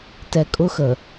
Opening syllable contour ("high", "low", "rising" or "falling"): low